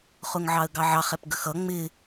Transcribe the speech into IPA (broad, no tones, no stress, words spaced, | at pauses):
χʊŋʕɑə̯ɡɑʕɑχ ɛpɡəxʌ ŋ͡mɪ